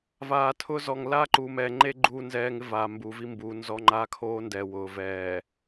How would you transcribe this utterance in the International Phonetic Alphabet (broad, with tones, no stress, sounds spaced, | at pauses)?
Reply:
v aː˨ tʰ ʊ˦ z ɔ˨ ŋ l a˦ ǃ uː˨ m ɛ˨ ŋ͡ǃ e˦ ɡ͡ǃ uː˦ n z ɛː˦ ŋ ɪ˦ v aː˨ m b uː˨ v i˦ m b uː˨ n z ɔ˦ ŋ͡ǃ aː˦ kʰ oː˦ n d ɛː˨ w ʊː˨ v ɛː˨